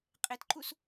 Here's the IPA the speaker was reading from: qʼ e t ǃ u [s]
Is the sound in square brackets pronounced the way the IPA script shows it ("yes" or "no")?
yes